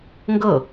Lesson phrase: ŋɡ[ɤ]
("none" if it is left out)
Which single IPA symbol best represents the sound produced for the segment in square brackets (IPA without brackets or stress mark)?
ɤ